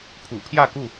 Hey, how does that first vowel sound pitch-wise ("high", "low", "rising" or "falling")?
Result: low